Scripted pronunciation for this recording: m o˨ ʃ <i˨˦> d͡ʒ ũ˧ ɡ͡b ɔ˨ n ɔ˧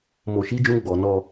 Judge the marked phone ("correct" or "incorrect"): correct